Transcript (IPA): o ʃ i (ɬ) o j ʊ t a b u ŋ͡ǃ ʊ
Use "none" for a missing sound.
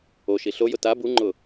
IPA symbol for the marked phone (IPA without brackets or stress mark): ɬ